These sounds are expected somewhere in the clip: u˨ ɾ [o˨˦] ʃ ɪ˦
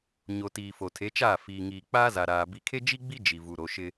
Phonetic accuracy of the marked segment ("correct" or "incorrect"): correct